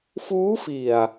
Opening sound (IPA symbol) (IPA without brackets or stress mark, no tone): f